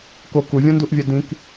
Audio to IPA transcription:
k o k u vʲ õ n d u ʔ vʲ ɛ d ĩ k

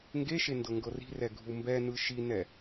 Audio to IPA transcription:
ŋ ɡ e ʃ e n d ɤ ŋ ɡ ɤ r i̤ r ɛ ɡʱ u m b ɛ n ɯ ʃ i n ɛ

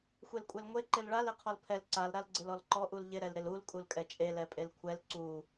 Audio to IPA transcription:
xʷ e l kʷʼ ɛ l ŋʷ e ǃ ɪ l ɭ a l e qʰ ɔ l pʰ ɛ l ǀ a l ɾ a l ɡ͡ǀ ɪ l ɔ l ǃ ɔ ʔ u l ʎ ɪ ɾ ɛ l ɾ ɪ l u l kʼ u l kʼ ɛ t͡ʃʼ e l ɛ pʼ e l kʷʰ ɛ l ǀ u

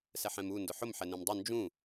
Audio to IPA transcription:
s ɛ ħ ɛ̃ m u n d ʊ ħ ʊ m ħ ɛ n ẽ m dˤ ʊ n d͡ʒ ũ

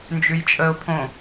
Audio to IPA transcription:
n d͡ʒ ʉ j t͡ʃʼ ə ʊ̯ pʰ õ

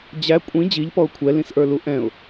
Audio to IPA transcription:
d͡ʑ æ kʷʼ ĩ d͡ʑ i ʎ p ɔ ʊ̯ kʷʰ ɛ l ĩ s ʔ ə˞ l u ʔ ɛ̃ ʊ̯

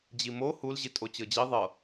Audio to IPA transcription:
d͡ʑ i m o h u l ʑ i tʼ o t͡ɕ ɤ d͡ʑ i ðˤ ɤ

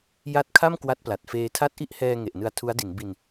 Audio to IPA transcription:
j a˦˥ t̚ kʰ a˥˩ m k w a˦˥ t̚ p l a˨˩ t̚ f eː˧ tʰ a˦˥ t̚ ʔ i˥˩ ʔ h ɛː˧ ŋ e˨˩ ʔ n ɯ˧ a̯ tʰ u˦˥ a̯ d i˩˦ n b i˧ n

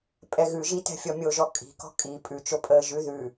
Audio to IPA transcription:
pʼ ɛ ɣ ʉ ʒ i t ɛ̤ fʲ ɔ mʲ o ʒ ɔ kʼ i̤ k ɔ̤ kʼ i pʼ ʉ t͡ʃ o pʼ əː ʒ ʉ ð ʉ

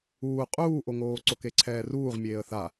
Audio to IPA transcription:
uː qʼ uː ʔ o ŋ oː ǀ o k e ǀʰ ɛː r uː ʁ mʲ eː ə̯ θ a

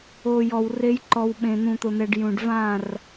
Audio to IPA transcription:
o˨ j ɔ˨ w r e˦ j ǃ ɔ˨ w ɓ ẽ˨ n̪ ũ˨ t̪ ʊ˨ n̪ ɛ˨ ɖ j ũ˨ ɖ v ã˦˨ r

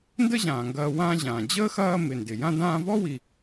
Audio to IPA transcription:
n d ə˦ ʑ ãː˩ ŋ ɡ ɐː˨ w ãː˦ ʑ ãː˩ d͡ʑ əː˥ x ɐː˦ m ɪ˩ n d ɪ˩ j ã˦ d ãː˦ v ɔ˥ w i˨

